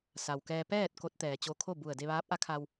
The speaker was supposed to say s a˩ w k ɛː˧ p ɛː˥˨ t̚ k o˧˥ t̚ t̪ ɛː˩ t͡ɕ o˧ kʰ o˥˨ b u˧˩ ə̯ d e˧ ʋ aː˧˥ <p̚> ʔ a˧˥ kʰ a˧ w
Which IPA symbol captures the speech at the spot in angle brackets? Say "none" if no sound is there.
p̚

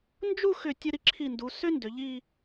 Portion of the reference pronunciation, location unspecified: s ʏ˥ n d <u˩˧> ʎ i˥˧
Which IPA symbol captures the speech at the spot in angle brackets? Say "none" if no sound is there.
ʏ˩˧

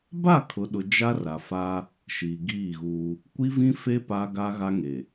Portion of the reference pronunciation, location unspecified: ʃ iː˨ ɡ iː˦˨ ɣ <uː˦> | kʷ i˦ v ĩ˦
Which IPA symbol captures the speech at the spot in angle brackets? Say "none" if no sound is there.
uː˦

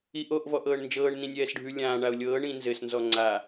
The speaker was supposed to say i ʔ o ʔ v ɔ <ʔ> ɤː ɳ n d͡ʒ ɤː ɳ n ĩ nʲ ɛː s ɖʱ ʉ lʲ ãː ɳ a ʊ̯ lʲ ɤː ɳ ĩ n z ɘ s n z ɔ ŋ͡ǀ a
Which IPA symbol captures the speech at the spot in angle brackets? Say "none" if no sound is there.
ʔ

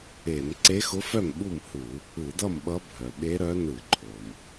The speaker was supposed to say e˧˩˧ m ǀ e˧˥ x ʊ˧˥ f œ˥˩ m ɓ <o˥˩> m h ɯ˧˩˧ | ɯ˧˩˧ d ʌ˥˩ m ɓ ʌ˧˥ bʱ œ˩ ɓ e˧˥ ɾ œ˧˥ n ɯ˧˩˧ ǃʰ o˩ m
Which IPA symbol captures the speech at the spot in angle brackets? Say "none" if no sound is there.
u˥˩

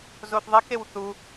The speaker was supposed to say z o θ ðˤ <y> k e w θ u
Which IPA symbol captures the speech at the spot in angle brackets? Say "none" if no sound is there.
e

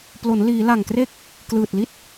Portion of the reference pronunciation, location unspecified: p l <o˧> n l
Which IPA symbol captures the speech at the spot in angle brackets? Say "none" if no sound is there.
o˩˦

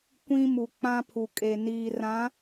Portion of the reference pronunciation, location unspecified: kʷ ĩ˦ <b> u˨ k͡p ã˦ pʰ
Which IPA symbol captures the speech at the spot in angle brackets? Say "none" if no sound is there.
m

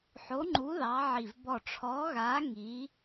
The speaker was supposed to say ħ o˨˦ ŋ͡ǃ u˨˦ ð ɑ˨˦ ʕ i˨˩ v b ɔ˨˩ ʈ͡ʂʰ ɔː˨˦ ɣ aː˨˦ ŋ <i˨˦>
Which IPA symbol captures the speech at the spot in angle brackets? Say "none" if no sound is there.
i˨˦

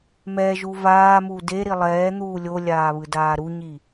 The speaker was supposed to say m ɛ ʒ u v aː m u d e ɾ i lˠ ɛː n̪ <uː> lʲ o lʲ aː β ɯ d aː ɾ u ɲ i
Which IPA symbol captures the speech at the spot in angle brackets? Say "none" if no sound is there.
uː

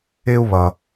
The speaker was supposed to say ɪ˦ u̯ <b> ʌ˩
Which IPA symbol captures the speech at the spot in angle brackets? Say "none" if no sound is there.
β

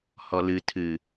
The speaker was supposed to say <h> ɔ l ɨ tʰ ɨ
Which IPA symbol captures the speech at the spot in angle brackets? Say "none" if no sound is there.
h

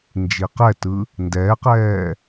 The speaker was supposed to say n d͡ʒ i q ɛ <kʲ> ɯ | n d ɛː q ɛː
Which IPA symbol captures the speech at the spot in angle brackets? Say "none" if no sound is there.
t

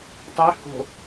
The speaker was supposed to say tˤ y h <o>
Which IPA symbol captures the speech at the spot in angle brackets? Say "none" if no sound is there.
o̤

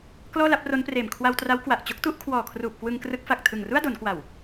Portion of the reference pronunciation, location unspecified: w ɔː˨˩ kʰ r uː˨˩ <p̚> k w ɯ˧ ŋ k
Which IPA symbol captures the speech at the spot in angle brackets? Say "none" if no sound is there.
p̚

